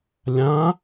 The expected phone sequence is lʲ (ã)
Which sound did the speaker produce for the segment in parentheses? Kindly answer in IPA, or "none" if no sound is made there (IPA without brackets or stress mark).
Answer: ã